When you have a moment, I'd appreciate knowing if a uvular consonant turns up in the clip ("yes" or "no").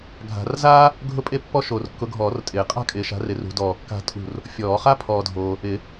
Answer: yes